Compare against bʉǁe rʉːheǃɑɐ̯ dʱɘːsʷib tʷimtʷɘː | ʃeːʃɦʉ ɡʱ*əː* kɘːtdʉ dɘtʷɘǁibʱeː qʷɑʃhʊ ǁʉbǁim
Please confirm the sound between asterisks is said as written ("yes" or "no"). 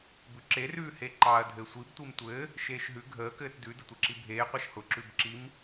yes